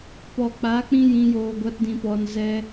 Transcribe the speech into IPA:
pɔ˨k͡pa˨˦ k͡pĩ˦jĩ˧ joː˧ ɡʷa˦tdĩ˧ pɔ˧nzɛ˦

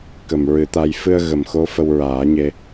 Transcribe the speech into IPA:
kə˨˩mɹɨ˨˩˦t̪a˧j fɨ˧ə̯ ɣə˨˩mxo˧˥ fə˧wɹaː˨˩˦ɲe˧

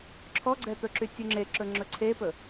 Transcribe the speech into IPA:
ǁʰɔɡ͡ǀɛt̪ɵǁy tʲuŋ͡ǁeǁɵ ŋ͡ǁɵǀʰepɵ

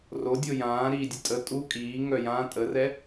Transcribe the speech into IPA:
rodʲo jãː ɾiːdʲətʼə tʼu kʼiː ŋœjã tʼərɛ

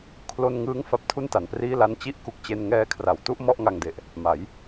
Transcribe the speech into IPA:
kʰlo˧nŋɯː˦˥ŋ fa˦˥p̚tʰu˥˩nta˩˦npriː˥˩ la˧nt͡ɕi˥˩ʔku˨˩k̚t͡ɕe˧n ŋɛː˧kʰra˩˦wtu˥˩ʔ mɔ˥˩ʔŋa˧ŋde˨˩ʔ | ma˩˦j

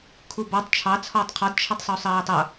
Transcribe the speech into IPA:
kʰubɒtˤ t͡ʃʰɑ t͡sʰɔːtˤqʰɒd t͡ʃʰʌtˤsˤusˤɜːtˤʌ

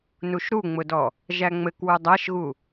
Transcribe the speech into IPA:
nuʃɾuŋ͡mʊdɔ | ʒæŋ͡mɘk wudˤæʃɣu

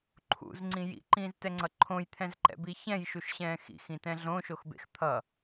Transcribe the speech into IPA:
ǃʰṵzŋ͡ǀĩ jḭǃĩːztɛŋ͡ǀʌ ǃʰõjt̪ʰɛ̃zǃɛ̰bi çɛ̃jʃuʃɕɛ̃ː xḭxĩtɛ̃ ɮõʃoxbḛx t̪ʰʌ

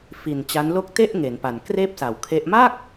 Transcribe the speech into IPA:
fi˨˩n t͡ɕa˦˥nlo˥˩k̚ te˥˩ʔ ŋe˩˦npa˨˩n kreː˥˩p̚sa˨˩wkʰe˦˥ʔ ma˥˩k̚

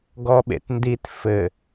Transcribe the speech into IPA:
ɡɔɓḛtndit fɘ

